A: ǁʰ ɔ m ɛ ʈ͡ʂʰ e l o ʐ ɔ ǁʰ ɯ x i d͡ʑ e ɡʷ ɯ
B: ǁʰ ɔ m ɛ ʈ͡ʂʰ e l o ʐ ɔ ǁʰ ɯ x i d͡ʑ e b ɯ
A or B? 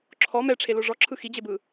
B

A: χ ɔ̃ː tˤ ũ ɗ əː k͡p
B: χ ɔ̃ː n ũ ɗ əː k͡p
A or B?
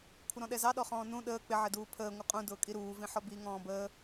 B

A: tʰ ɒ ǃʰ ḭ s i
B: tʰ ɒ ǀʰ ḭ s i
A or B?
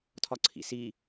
B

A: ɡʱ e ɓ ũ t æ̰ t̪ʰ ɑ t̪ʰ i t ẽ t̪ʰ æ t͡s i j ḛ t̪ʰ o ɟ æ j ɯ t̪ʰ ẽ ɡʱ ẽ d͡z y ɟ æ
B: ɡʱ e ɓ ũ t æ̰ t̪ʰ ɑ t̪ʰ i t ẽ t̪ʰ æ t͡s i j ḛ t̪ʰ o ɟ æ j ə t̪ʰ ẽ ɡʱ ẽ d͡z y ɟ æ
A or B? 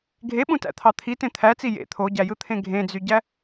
A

